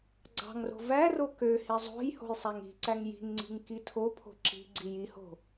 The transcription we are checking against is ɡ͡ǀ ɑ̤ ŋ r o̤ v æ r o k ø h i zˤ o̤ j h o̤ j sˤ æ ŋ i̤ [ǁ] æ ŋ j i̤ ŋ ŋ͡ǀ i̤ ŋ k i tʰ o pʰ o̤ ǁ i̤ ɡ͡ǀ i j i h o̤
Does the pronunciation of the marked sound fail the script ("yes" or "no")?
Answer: yes